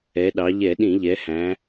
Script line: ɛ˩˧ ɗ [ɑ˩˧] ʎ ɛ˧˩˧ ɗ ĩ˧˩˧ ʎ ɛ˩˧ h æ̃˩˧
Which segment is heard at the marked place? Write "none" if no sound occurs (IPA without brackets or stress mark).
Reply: ɑ˩˧